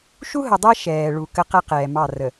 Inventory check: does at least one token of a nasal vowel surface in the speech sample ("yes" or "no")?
no